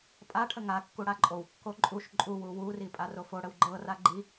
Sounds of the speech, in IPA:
pʼ a ʈʰ ə ŋ a kː u ɽ a ǃʼ o w kː o ǃʼ u ʃ ǃʼ u w u w u r i pʼ a r o f o ɽ ə w ɡ͡ǃ ɤ r a ɡ͡ǃ i

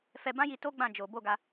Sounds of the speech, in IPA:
f ɛ˧ b ã˦ j i˧ t o˦ ɡ͡b ã˦˨ d͡ʒ o˨˦ b o˦ ɡ a˦

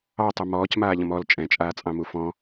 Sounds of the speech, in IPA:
ɑ tˤ u m ɔː c m aː ʎ ə̃ m ɔ l t͡ʃʼ ɛ̃ t͡ʃʼ aː t͡sʼ ɑ̃ m u f ɔ̃

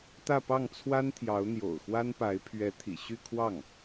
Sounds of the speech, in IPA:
t̪ ä˥˧ p ɑ˥˩ ŋ t͡sʰ w a˥ n t̪ʰ j ɑ˧˥ ʊ̯ n̪ j o̰˨˩ ʊ̯ x w a˥ n p a˧˥ ɪ̯ pʰ ɥ ɛ˧˥ t̪ʰ ḭ˨˩ ɕ y˥˧ kʰ w ɑ˥˩ ŋ

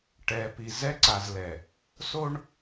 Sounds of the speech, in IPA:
ʈ ɛ˨ p i˨ z ɛ˦ ǀ a˨ z l ɛ˨ | s o˦ ɳ

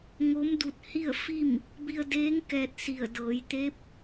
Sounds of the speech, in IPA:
ŋ o˧˥ m d u˧ t̚ h i˥˨ ə̯ f i˥˨ m | b i˧ ə̯ d eː˧˥ ŋ k ɛː˧ t̚ s i˧˩ ə̯ d ɤː˩˧ j t̪ e˧˥ p̚

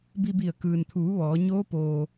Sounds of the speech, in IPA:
b i˧ b i˧˩ ə̯ k ɯː˩ n t̪ʰ uː˩˧ ʋ ɔː˩˧ ɲ oː˧˥ p oː˩

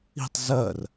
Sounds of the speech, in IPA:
i̤ tˤ z ɜ r

